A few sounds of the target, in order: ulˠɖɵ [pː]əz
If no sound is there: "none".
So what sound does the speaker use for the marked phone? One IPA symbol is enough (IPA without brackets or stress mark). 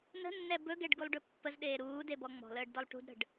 pː